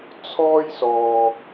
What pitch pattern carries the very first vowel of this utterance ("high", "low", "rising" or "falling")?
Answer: high